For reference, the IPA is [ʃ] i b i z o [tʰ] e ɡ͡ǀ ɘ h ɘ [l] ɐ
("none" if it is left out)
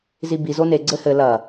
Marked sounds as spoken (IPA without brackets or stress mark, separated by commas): z, n, l